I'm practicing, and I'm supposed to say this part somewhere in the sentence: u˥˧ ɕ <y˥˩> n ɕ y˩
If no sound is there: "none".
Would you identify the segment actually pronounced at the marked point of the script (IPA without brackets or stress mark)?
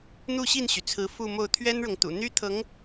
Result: i˥˩